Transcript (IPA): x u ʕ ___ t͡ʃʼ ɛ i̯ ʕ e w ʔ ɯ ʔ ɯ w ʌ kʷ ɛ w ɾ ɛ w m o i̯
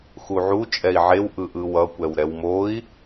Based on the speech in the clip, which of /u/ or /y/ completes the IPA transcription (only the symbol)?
u